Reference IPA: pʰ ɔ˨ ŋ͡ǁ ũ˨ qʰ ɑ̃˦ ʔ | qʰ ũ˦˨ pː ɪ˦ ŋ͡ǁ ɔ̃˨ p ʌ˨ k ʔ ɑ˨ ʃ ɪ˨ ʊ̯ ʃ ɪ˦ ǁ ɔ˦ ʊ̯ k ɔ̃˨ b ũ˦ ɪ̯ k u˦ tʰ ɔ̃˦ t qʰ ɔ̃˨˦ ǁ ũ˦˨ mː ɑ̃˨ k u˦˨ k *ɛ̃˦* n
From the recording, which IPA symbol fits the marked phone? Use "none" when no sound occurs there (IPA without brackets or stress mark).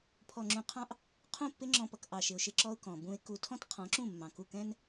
ɛ̃˦